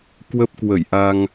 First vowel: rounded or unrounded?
unrounded